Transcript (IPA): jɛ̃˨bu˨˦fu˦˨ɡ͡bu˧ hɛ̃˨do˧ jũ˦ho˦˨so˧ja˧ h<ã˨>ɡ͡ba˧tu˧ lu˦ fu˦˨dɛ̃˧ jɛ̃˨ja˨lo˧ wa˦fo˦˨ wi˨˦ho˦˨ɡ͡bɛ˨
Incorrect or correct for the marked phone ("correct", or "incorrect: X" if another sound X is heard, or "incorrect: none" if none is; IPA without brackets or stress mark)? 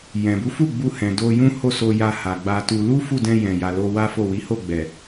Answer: incorrect: a˨